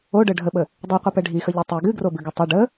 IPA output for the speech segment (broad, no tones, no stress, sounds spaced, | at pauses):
o ɖ ə ɖʱ ə ɓ ə | dˤ i qʷ i p ɛ ɖʱ i x ə ʎ o tˤ i ɡ ɨ ɡ r o b ɨ ɡ ɨ tˤ ɨ ɖ ə